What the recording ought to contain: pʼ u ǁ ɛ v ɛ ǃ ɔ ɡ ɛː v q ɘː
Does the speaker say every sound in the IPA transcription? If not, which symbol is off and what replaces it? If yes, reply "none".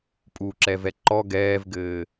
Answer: q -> ɡ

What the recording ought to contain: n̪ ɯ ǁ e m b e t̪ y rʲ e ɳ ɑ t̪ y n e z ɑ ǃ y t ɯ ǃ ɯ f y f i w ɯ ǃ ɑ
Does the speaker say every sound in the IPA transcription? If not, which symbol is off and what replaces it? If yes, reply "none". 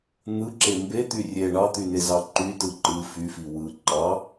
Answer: none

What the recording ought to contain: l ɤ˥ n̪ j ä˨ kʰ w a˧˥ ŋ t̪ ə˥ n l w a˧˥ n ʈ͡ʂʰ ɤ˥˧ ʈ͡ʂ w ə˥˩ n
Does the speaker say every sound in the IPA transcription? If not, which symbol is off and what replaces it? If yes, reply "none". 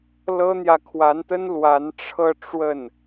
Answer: ŋ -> n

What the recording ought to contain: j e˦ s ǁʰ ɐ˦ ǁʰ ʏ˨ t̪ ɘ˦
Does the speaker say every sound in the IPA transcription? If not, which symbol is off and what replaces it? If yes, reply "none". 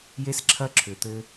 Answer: none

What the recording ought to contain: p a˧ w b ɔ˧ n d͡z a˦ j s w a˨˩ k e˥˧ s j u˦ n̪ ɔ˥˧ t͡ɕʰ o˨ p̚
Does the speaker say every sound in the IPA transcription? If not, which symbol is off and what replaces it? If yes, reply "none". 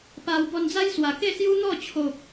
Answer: none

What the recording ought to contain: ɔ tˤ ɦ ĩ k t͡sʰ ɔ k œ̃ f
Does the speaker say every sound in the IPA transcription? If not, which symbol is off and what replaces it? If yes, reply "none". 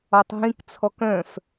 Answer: none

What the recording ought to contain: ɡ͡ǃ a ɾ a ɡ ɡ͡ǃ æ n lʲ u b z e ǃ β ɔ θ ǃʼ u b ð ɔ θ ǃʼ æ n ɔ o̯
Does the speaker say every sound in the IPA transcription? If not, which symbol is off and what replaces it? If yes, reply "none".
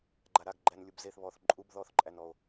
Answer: ǃ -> θ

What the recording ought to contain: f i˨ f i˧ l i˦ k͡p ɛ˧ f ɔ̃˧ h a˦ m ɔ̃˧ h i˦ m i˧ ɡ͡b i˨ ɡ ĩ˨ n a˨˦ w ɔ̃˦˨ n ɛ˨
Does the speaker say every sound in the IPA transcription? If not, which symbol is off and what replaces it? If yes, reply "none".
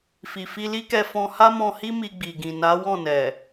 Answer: k͡p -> k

